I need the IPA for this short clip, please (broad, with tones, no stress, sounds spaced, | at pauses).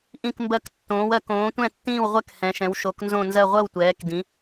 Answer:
ʔ ĩ˦˨ k m b ɜ˦˨ k tː õː˩˧ w ɜ˩˧ k õː˩˧ tʷ ɛ̃˦˨ tː ĩː˦˨ w ʁʷ ɛ˦˨ k h ɛ̃˩˧ ʃ ɛ̃˩˧ w ʃ o˩˧ k n z õ˦˨ n z ɜ˦˨ ʁʷ ɜ˦˨ w tʷ ɛː˩˧ k d ĩ˩˧